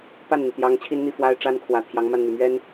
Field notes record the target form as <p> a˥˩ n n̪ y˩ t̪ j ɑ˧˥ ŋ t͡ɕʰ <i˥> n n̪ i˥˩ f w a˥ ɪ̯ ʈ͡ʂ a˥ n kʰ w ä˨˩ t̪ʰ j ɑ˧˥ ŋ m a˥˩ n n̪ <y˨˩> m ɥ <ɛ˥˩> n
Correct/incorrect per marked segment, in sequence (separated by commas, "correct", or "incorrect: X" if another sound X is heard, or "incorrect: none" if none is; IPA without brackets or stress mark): correct, correct, correct, incorrect: ɛ˥